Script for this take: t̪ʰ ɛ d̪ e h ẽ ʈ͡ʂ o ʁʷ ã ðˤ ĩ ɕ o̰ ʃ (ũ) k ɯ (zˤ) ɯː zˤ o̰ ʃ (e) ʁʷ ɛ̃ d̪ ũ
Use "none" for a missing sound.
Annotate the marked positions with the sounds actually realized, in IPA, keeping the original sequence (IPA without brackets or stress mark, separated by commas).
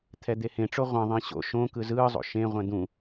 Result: õ, z, ẽ